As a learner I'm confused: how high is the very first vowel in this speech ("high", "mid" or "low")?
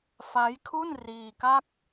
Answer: low